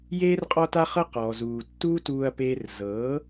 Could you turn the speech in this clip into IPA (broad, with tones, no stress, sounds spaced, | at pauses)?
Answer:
j eː˦ r qʼ ɔ˦ t a˦ χ ɤ˦ q ɔː˨ z uː˨ tː uː˦ t uː˧ ɐ̯ p eː˧ r z ɤː˨˦